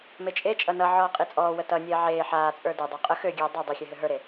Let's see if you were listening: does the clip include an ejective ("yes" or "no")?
yes